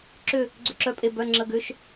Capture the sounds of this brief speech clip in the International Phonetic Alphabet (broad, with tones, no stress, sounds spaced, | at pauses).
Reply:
ǁ ʏ˦˨ | ɡ͡ǀ ʏ˦˨ ǁ œ˦˨ pʼ e˦˨ b œ˧˥˧ ŋ͡ǁ ə˧˥˧ ɡ ʏ˧˥˧ ʃ